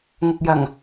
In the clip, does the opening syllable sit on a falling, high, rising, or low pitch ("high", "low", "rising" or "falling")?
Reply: low